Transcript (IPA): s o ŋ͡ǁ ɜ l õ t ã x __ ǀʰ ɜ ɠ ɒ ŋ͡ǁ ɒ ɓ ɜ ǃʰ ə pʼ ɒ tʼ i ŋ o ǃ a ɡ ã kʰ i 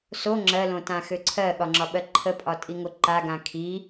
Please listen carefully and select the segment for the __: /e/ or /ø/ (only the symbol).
ø